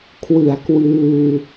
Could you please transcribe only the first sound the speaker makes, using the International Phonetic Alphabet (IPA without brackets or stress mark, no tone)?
kʰ